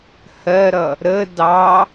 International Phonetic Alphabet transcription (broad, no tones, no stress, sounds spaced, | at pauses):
h ɜ ɾ ʌ | ɾ ə d ɑ